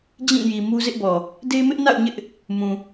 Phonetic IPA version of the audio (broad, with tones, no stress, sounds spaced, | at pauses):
d͡ʑ ĩ˦˨ j i˨ m u˦ z ɪ˦ ʔ b ɔ˨ | d e˦ m ɪ˦ ʔ n a̰˦˨ ʊ̯ ɲ ɪ˦ ʔ | m ũ˨